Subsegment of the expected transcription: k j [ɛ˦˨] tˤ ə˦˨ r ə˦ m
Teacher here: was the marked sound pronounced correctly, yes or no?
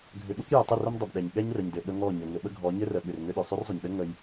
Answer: no